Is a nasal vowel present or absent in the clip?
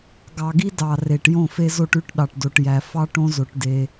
present